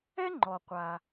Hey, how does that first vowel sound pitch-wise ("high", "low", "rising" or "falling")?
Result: high